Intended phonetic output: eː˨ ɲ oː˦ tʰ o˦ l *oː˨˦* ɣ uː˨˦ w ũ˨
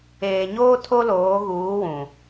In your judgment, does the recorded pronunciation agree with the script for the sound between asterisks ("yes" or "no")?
yes